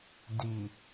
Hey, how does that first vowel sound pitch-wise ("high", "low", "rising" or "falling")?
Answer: low